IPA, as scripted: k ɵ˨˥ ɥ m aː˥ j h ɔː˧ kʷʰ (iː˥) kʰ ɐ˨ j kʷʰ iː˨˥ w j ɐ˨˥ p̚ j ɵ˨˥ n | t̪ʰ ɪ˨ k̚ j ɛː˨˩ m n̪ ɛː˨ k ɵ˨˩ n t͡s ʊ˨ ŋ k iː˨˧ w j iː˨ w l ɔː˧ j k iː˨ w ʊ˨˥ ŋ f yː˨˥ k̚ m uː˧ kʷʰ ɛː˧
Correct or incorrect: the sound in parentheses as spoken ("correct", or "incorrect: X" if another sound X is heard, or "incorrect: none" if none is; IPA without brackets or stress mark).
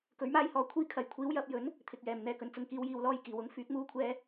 correct